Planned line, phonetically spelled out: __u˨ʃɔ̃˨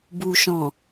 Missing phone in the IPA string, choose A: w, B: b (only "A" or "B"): B